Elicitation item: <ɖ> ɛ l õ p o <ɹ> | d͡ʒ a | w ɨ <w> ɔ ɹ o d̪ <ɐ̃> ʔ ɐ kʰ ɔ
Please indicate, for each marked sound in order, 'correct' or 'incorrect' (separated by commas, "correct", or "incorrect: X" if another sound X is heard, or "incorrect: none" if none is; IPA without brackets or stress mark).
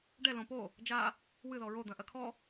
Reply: correct, incorrect: none, incorrect: ð, correct